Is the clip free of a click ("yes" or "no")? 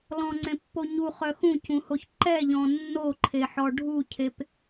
no